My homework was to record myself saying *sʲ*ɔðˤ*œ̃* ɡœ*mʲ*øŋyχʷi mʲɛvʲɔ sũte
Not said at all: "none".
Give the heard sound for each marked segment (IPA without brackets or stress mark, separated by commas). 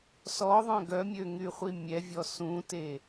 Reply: s, œ̃, mʲ